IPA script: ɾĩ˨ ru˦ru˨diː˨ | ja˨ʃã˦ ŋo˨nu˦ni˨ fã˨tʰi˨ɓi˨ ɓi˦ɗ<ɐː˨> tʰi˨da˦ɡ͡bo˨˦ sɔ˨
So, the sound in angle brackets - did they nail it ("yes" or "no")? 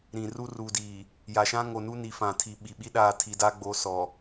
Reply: no